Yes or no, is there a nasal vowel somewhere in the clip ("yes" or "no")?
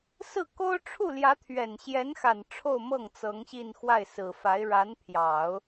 no